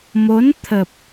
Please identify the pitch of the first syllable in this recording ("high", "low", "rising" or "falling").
rising